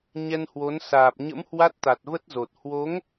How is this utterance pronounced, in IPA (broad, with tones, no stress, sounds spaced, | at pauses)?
ɲ ɛ˧ n h w o˨˦ n s aː˨˩ p̚ ɲ ə̰˧˥ m h w a˦˥ t̚ t̪ a˨˩ t̚ v ə˦˥ t̚ z o˨˩ t̚ h w o˨˦ ŋ